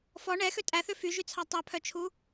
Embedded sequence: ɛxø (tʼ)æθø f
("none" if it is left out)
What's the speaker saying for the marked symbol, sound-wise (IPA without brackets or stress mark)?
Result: tʼ